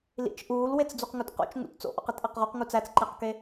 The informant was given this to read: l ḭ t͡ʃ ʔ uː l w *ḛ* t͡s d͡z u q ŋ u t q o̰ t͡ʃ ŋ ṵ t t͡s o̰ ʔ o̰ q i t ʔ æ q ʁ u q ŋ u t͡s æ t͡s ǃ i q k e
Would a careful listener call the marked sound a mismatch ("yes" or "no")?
yes